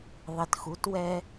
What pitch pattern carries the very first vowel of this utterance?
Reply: low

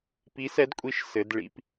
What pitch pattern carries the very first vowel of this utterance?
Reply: rising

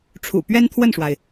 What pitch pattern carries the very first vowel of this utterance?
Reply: low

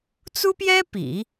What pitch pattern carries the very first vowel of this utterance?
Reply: high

